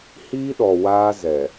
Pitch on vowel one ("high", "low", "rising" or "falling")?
high